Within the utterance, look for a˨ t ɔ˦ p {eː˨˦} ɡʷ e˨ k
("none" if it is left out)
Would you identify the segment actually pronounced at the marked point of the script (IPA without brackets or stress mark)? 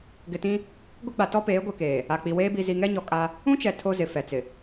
eː˨˦